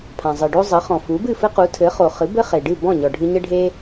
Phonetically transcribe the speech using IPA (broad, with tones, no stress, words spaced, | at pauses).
pʰã˩zˤɨ˩ ɖo˥ zˤɨ˩˥ χɔ̃˩ fu˩˥bɨ˥˩fɘ˥ qu˩˥tʰɘ˩˥ χo˩ χɨ˩˥bɘ˥χe˩ ɖɨ˥˩bɔ̃˥˩ ɲɔ˩ ɖʱɨ˧ɲə˥ ɖʱe˥